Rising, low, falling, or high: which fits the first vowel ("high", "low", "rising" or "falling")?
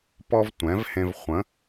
high